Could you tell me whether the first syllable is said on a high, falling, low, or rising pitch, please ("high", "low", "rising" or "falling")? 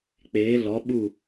rising